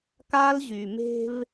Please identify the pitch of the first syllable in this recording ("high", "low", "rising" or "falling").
high